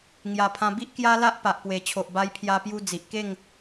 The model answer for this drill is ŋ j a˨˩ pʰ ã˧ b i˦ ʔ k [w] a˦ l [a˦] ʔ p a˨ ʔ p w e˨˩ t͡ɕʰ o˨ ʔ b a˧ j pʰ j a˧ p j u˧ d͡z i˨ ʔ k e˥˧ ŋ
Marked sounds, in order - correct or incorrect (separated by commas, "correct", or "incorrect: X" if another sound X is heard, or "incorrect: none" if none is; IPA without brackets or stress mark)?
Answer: incorrect: j, correct